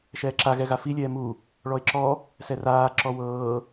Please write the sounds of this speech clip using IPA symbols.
ʃ ɛː ǁ a ɣ ɛ ɣ a f i lʲ ɛː m u | ɭ ɔ ɪ̯ ǁ ɔ | s ɛ r aː ǁ ɔ w ɤː

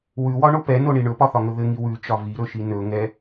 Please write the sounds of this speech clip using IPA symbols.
w ʉ w ɒ ɳ o p ɛ n o ɳ i ɳ ɵ p ɒ θ ɒ ŋ ɵ ð ɘ ŋ i w ʉ t͡ʃ ɒ v i ɾ ɵ ʃ i n ɵ ŋ ɛ

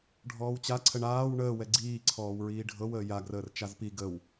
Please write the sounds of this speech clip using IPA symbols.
ɖʱ ɔː w t͡ɕ a ǀʰ ə ɳ aː w ɳ əː w ɛ ɡ͡ǀ iː ǀʰ ɔː w ɹ iː ɖʱ ɤ w əː j a ɡ r əː r t͡ʃ a z p i ɡ ə w

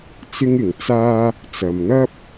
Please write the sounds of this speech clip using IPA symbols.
t͡s ɪ˥ ŋ ɪ˨ ŋ t͡s aː˥ | t͡s ɐ˨ m n̪ ɐ˥ p̚

